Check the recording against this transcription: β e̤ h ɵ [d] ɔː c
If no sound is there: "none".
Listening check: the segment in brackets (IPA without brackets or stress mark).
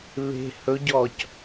ɟ